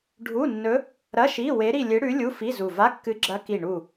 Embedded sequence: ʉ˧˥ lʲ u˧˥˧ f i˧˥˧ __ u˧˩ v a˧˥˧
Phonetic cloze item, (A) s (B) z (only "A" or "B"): B